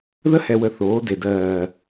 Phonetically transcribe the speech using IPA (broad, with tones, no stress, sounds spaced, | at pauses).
ð ə˦ h ɛ˨ w ə˨ θ oː˨˦ d e˨ d ɜː˨